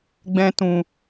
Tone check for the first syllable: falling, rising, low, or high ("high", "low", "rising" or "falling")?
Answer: high